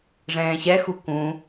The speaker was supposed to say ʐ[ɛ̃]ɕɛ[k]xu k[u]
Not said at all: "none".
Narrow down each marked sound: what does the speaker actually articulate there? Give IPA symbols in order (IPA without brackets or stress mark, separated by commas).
ɛ̃ː, none, ũ